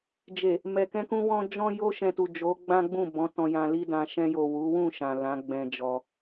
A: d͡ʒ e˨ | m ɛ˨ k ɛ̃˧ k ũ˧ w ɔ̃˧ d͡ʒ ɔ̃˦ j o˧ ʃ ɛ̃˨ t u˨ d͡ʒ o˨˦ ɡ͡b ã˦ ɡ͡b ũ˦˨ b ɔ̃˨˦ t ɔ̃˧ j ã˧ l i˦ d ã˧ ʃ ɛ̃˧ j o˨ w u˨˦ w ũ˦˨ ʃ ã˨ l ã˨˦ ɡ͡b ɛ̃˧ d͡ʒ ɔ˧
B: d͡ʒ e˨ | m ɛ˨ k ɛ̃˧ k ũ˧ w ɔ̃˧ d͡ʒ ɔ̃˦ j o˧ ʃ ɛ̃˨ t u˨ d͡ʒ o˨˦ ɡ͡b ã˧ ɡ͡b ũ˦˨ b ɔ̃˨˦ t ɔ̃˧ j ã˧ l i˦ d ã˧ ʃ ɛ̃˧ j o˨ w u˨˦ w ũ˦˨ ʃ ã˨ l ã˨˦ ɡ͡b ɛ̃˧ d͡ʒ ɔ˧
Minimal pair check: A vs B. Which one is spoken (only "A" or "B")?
A